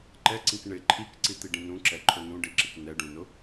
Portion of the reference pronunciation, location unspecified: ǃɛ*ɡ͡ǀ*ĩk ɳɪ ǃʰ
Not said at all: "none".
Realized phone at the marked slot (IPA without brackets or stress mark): ǀ